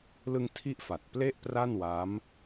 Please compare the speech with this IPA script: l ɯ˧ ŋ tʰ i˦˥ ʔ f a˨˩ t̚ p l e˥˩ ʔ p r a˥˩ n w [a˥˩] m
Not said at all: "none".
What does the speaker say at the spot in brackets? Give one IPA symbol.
a˦˥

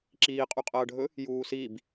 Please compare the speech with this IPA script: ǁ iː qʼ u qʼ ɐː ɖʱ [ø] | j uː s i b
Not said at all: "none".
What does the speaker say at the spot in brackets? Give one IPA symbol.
ɵ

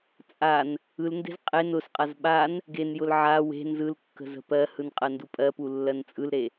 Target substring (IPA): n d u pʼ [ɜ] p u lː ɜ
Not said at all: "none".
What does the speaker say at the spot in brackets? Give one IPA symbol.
ɜ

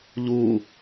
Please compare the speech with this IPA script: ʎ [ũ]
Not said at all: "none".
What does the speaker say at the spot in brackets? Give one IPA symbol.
u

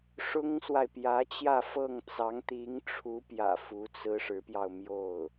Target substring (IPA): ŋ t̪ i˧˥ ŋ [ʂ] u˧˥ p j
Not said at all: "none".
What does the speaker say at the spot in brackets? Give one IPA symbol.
ʈ͡ʂʰ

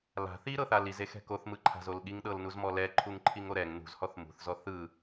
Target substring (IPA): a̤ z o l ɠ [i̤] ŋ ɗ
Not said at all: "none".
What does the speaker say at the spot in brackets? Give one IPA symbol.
i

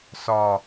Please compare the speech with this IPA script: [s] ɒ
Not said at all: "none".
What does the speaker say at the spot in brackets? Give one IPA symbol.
s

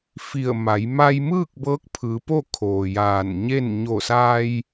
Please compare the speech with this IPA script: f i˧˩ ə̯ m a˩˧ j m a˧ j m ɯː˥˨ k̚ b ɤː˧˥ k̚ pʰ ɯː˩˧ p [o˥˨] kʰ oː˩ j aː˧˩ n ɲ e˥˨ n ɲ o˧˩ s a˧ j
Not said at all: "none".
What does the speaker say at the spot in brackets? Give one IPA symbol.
o˥˨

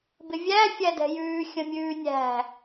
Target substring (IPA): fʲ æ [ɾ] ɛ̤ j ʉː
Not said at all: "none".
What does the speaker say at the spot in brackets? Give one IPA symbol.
d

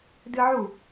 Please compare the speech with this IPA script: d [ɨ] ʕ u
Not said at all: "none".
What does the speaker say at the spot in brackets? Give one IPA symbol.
ɨ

